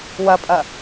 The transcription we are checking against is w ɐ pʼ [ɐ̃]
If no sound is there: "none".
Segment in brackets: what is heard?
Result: ɐ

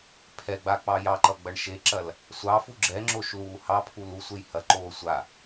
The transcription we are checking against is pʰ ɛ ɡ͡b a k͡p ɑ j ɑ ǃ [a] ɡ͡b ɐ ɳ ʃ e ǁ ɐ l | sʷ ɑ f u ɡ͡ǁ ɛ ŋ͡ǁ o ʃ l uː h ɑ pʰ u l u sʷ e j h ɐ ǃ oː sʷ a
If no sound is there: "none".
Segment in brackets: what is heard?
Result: ʌ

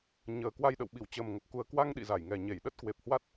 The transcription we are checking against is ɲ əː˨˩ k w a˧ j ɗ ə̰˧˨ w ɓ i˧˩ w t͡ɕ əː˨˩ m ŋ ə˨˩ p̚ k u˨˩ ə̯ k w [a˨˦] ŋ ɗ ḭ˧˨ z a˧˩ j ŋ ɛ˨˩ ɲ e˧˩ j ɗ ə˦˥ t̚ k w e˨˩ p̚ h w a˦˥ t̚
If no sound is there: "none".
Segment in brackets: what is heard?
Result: a˧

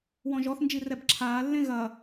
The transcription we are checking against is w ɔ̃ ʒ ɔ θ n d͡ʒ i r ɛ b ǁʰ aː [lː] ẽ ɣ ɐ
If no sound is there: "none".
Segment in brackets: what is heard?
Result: lː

